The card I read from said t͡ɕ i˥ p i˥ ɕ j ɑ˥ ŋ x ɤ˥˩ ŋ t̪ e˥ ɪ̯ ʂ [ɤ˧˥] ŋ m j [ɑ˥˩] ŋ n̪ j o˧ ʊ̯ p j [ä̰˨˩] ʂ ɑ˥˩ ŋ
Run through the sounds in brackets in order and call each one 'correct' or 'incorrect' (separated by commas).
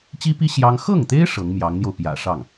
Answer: correct, incorrect, correct